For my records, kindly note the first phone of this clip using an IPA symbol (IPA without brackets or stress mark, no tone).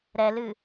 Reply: ɾ